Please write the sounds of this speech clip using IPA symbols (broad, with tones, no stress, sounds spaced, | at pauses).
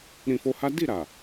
ɾ ĩ˧ f o˧ h a˦ d i˦˨ ɾ a˨